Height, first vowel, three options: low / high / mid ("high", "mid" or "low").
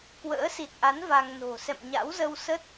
mid